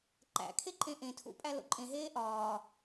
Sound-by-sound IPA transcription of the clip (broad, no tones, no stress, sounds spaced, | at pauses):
ǃ æ̰ kʰ e ǃʼ ẽ ʔ ẽ tʰ ṵ pʼ æ l o̰ ǃʼ ẽ ɦ eː ʔ ɒː